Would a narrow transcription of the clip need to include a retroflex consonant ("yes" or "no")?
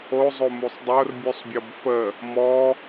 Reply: no